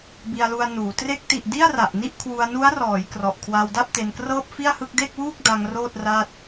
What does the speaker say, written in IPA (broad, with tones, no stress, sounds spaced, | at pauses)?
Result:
b i˧ a̯ l u˧ a̯ n uː˩˦ t r e˦˥ k̚ t i˨˩ ʔ d i˥˩ a̯ r a˨˩ ʔ n i˥˩ ʔ kʰ w u˧ a̯ n u˦˥ a̯ r ɔː˩˦ j k r ɔ˨˩ ʔ kʰ w a˧ w d a˥˩ p̚ t e˧ n k r ɤː˥˩ p̚ f i˥˩ a̯ h ɯ˥˩ k̚ d e˥˩ k̚ w uː˥˩ k̚ d a˧ ŋ r oː˥˩ t̚ r a˥˩ t̚